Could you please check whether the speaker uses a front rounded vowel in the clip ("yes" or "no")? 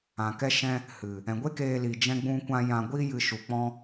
no